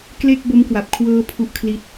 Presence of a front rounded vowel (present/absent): absent